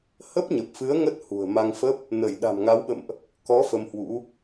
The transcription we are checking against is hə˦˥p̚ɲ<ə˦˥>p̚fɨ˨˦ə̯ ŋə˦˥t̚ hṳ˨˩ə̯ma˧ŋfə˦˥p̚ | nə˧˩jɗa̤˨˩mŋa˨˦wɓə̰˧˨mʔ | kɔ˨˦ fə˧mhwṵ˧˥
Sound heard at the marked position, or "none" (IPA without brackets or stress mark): ə˨˩